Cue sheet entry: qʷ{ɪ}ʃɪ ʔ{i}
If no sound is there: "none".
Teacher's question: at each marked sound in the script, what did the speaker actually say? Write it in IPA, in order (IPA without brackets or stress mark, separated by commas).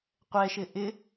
ɛ, ɪ